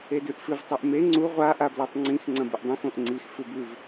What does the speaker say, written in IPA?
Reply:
edʉʔfɨv tˤoʔme ŋ͡ǀu ʁʷa ʔablatˤŋ͡ǀĩx ŋ͡ǀɐ̃bɨʔdˤĩx õʔŋ͡ǀix fʉbʉv

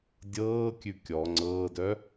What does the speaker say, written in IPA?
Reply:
dʲɤːkʲʉ kʲɔ ŋ͡ǀɤːdœ

